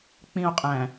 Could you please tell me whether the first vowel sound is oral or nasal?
nasal